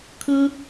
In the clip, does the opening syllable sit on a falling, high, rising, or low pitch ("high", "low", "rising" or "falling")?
high